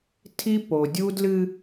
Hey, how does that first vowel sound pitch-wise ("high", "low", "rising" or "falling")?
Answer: high